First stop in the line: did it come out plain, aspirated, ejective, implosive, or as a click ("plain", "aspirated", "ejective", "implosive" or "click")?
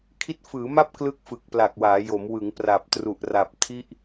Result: aspirated